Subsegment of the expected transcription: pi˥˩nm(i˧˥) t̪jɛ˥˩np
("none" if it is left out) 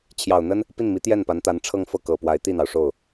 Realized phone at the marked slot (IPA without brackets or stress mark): i˧˥